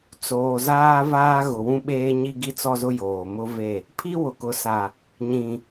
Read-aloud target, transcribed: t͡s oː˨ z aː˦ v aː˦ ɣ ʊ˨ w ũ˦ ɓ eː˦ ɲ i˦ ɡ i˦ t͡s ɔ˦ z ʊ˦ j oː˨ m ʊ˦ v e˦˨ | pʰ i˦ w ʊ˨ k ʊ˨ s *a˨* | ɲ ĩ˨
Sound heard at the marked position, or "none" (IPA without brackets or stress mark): a˨